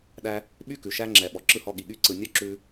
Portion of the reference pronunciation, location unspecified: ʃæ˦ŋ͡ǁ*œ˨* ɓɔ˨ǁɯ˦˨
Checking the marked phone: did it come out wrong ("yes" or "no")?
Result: yes